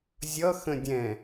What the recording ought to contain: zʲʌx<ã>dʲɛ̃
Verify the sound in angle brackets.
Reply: incorrect: ə̃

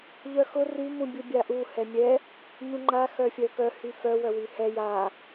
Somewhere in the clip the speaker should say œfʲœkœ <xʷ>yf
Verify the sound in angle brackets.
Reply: incorrect: h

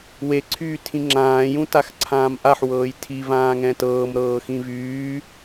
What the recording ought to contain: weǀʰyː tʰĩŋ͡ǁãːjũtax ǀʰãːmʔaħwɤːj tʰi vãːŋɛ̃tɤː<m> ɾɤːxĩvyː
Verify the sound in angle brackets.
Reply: correct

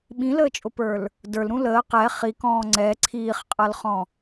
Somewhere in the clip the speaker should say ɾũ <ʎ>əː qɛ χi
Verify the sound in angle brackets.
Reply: incorrect: l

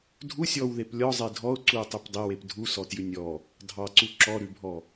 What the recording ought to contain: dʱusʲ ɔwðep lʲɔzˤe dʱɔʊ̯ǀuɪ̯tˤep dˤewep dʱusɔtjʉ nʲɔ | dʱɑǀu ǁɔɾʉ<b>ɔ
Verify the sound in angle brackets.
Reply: incorrect: bʱ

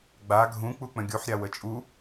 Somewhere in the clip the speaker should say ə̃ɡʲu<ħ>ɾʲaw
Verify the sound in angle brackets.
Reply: correct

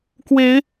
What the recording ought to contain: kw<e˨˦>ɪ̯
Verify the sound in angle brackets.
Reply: correct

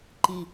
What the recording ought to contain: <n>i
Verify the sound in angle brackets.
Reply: incorrect: ǃ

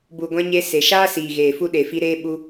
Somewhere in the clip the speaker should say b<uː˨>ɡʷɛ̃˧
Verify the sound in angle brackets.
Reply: incorrect: u˨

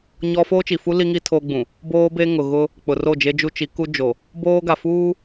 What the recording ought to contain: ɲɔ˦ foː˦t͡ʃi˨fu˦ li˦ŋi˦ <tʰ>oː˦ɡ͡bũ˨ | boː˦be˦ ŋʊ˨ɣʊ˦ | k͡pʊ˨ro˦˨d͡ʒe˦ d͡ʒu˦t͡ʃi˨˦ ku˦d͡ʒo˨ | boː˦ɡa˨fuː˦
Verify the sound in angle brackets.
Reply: correct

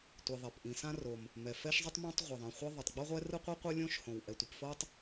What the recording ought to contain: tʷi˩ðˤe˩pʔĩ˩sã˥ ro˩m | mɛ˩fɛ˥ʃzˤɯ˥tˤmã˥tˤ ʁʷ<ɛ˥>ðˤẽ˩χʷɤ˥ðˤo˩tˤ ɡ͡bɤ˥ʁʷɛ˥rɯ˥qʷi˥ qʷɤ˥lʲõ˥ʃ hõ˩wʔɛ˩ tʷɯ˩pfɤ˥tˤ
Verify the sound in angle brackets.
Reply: incorrect: ɛ˩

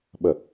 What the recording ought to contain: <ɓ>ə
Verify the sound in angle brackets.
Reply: correct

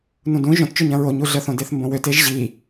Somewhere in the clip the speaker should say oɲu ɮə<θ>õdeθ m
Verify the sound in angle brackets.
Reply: correct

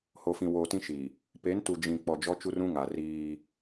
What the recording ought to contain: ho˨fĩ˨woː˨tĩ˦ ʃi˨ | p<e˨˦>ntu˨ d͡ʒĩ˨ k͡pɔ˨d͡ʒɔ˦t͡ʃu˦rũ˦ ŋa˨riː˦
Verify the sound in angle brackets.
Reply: correct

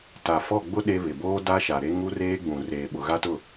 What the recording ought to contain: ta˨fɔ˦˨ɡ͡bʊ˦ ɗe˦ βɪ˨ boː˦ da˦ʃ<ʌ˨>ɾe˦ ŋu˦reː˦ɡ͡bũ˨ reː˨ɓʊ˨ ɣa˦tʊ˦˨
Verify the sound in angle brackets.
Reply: incorrect: a˨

